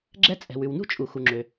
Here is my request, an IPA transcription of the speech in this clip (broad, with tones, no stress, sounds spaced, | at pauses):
ɡ͡ǁ ɛ˥ t͡sʼ ɛ̤˩ w ʉ˩ w n ṳ˥ t͡ʃʼ u˩ x u˩ ŋ͡ǁ ø˩